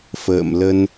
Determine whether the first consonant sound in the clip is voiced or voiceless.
voiceless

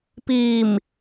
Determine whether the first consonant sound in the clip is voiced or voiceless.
voiceless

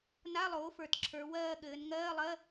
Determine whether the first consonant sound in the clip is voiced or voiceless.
voiced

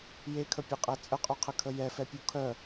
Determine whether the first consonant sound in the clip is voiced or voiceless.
voiced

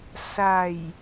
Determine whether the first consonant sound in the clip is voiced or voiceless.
voiceless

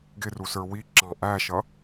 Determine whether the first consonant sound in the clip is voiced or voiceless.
voiced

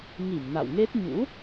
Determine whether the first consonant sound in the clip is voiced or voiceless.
voiced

